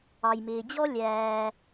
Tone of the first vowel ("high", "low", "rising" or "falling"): low